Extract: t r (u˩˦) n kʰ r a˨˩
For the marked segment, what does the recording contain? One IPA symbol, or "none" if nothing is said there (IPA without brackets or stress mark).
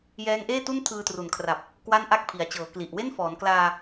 u˨˩